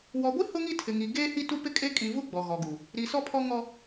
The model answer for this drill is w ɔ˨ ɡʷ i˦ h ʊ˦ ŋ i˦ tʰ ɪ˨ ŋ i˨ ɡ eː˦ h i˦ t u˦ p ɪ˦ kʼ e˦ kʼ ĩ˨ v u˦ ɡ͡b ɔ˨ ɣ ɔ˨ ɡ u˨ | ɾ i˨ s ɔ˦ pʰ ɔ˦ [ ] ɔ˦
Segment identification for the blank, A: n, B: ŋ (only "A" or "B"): B